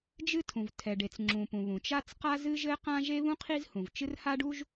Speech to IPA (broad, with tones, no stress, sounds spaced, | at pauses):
d͡ʒ ɨ˥ tʰ ũ˩ v tʰ ɛ˩ ɖ e˩ t͡s ŋ͡ǁ ũ˩ p ũ˩ β ũ˩ t͡ʃ a˥ t͡s q a˥ z ɨ˥ ʒ ɘ˥ q ã˥ ʒ e˥ β ũ˥ qʰ i˥ z h ũ˩ v t͡ʃ ɨ˥ r h a˥ ɖ u˥ ʒ